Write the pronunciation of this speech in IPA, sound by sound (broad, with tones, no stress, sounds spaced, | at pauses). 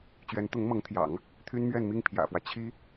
t͡ɕ ɥ ɛ˧˥ n t̪ ʊ˧˥ ŋ m ɤ˧˥ ŋ t̪ʰ j ɑ̰˨˩˦ ŋ | t̪ʰ y˥ n m ɥ ɛ˥˧ n m i˥˩ ŋ pʰ j ä̰˨˩ f w ä˦ t͡ɕʰ i˥